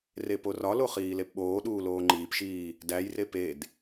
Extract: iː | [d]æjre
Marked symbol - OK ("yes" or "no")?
yes